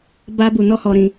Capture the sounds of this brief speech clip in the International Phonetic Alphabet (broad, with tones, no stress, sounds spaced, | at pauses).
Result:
b a˦ b u˨ n ɔ˦ h ɔ˨ ɾ ĩ˨